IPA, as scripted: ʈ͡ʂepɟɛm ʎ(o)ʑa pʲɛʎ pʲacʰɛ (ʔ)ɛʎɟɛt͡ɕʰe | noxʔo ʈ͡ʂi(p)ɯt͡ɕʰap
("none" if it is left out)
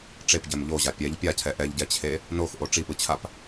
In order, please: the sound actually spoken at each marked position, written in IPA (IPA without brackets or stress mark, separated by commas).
o, ʔ, p